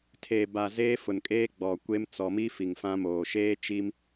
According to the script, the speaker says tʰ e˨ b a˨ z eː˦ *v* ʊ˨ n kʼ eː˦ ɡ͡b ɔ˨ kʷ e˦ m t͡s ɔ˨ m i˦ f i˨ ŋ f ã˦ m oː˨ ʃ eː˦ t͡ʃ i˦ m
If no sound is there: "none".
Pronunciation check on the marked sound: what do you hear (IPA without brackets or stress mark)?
f